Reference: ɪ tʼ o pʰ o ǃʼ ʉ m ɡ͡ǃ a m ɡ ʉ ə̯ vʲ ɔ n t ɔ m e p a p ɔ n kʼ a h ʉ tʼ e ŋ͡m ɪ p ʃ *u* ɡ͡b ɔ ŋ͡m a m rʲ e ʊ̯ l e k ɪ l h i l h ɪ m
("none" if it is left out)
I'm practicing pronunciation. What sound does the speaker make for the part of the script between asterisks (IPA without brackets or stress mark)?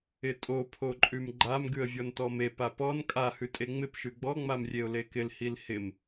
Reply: ʉ